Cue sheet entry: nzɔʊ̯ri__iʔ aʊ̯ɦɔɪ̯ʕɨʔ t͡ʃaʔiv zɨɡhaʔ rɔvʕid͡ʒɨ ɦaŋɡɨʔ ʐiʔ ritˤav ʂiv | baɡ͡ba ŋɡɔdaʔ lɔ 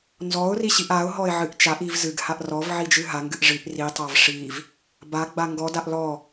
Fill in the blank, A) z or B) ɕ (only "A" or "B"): B